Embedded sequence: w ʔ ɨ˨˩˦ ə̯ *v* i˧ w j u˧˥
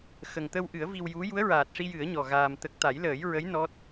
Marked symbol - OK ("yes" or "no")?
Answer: yes